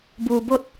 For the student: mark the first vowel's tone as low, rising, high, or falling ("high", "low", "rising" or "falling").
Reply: low